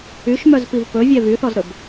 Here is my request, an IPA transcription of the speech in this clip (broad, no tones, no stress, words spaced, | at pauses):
yʃmœzpiv pɵvʲɛ vyθɔzɾɵb